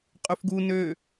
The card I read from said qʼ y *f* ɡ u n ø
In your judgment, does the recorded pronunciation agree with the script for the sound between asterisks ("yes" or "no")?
yes